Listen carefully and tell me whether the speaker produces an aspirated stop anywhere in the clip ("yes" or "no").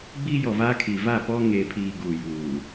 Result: yes